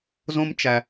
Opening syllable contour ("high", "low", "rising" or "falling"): high